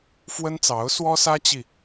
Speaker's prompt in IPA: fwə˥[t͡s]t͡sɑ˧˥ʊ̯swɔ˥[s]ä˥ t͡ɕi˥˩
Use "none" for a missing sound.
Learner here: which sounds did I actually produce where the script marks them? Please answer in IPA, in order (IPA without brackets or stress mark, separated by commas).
n, s